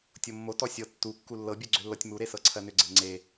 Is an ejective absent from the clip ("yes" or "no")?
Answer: yes